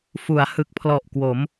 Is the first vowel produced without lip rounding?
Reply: no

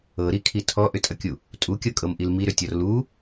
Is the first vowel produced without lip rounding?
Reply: yes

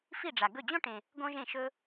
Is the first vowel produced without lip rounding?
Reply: yes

